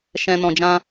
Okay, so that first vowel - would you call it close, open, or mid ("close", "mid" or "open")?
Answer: mid